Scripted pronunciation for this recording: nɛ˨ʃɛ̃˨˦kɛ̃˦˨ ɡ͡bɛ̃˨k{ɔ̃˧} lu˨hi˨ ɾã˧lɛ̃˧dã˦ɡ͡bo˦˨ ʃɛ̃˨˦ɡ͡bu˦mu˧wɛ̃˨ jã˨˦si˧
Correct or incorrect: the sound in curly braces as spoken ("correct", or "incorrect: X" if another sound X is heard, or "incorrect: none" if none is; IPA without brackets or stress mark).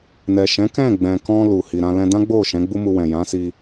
correct